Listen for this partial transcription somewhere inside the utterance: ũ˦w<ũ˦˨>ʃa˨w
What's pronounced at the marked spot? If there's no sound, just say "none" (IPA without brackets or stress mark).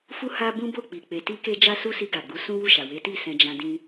u˦˨